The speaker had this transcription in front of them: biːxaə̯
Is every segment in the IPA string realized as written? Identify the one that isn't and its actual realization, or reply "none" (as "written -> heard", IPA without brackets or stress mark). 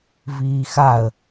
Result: b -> v